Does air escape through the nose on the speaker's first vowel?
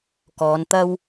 no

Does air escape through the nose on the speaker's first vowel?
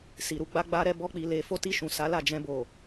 no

